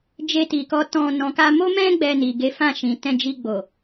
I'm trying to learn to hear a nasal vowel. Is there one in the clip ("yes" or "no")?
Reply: yes